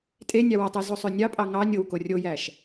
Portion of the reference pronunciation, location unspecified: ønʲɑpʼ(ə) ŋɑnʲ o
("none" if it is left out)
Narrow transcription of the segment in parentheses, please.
ɑ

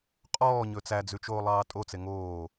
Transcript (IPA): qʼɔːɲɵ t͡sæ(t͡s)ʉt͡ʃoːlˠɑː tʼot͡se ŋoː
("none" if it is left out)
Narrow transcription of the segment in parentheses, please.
d͡z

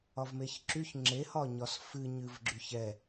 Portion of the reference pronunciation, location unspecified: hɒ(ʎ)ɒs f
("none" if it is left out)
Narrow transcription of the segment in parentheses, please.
ɲ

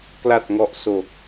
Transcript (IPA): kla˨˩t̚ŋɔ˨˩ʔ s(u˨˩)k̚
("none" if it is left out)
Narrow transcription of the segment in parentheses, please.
o˨˩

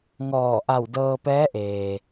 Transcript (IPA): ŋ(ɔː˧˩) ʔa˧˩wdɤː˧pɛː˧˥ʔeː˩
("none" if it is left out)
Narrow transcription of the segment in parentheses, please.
ɔː˧˩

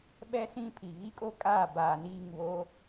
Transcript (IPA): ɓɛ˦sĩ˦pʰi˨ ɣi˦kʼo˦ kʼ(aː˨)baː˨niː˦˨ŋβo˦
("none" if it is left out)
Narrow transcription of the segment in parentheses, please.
aː˦˨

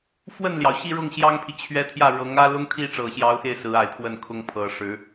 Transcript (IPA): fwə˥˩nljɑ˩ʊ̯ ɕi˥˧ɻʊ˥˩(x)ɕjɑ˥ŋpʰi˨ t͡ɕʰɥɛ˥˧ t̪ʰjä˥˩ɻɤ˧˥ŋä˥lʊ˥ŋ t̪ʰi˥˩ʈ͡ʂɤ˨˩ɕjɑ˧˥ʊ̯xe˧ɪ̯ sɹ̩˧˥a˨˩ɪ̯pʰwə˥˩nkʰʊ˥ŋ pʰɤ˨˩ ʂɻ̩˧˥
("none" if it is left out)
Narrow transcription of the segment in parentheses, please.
ŋ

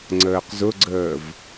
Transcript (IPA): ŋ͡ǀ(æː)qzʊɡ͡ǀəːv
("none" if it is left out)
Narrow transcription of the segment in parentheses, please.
əː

